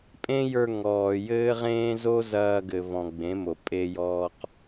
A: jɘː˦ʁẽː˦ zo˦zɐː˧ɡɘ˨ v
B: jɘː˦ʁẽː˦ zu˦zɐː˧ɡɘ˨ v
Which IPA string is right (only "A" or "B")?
A